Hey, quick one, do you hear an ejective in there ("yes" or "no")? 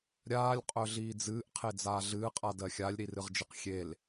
yes